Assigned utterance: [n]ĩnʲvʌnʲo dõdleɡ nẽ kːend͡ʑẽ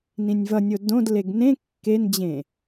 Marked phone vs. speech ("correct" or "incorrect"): correct